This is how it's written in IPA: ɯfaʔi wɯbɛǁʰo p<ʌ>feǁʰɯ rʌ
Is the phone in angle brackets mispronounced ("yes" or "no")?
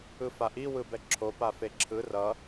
yes